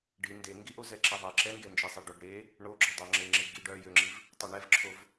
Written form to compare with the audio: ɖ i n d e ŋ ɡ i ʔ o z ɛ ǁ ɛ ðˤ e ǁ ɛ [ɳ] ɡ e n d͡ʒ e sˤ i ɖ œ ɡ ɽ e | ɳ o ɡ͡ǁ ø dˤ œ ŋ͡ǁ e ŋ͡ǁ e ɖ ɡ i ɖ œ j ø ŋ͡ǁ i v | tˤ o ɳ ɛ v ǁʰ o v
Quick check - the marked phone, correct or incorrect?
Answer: incorrect